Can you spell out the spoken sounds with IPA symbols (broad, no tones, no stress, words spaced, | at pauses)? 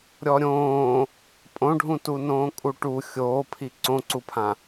ɾʲɔɾʲõː | pʼõɖʱũtu nõːkʼuʈu xʲoːpʰi ǀõǀupʰã